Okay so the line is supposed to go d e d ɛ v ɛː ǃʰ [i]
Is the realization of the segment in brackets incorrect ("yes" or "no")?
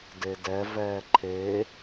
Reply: yes